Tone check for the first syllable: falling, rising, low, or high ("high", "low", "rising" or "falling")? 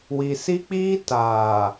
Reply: low